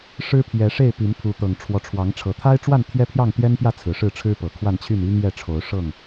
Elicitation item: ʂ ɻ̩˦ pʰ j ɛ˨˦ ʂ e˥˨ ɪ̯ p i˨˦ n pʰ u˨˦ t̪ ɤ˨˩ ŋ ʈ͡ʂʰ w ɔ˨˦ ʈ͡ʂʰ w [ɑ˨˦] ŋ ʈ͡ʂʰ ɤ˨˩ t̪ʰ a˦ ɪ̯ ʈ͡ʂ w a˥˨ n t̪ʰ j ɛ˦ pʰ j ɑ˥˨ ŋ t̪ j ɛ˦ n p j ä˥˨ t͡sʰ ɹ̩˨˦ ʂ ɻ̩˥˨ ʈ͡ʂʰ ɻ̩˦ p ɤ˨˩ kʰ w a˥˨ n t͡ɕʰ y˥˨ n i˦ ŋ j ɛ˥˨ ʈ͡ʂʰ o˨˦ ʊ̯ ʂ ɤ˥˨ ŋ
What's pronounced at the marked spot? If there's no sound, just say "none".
ɑ˨˦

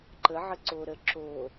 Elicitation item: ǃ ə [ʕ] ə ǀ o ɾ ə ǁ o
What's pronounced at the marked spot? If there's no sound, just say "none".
ʕ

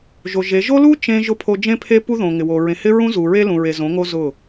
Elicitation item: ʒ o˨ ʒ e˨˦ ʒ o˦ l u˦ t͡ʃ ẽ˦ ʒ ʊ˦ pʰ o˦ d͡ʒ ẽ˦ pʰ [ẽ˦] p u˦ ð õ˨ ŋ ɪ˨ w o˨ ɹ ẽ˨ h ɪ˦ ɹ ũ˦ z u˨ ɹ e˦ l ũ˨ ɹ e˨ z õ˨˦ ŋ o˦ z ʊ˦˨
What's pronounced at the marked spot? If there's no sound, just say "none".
e˦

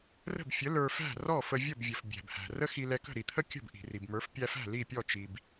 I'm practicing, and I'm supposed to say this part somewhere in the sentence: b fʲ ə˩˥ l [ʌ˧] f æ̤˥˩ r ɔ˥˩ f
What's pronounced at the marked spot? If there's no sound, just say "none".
ə˞˧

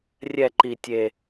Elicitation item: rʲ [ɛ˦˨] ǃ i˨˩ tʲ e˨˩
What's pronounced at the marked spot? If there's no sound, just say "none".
ɛ˦˨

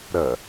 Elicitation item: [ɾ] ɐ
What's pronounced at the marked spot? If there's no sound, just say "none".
ɾ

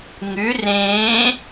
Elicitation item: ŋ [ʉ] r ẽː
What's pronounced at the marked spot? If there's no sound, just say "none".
ʉ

